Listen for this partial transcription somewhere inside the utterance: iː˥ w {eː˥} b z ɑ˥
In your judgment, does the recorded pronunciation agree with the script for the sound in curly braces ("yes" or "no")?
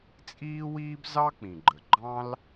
no